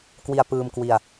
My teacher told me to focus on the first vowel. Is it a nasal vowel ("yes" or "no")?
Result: no